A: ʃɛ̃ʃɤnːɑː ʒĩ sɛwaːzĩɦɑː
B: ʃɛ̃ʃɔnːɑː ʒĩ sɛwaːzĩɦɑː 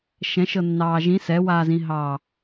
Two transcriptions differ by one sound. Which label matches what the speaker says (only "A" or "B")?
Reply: A